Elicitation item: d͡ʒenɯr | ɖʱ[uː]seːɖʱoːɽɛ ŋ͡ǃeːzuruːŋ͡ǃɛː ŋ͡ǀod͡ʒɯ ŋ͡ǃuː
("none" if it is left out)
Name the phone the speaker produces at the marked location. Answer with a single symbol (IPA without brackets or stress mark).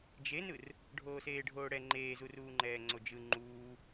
oː